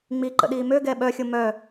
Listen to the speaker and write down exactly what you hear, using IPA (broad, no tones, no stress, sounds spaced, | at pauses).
ŋ͡m i ǃ ə̰ ɗ iː m ø ɡ ɛː ɓ œ xʲ o m œ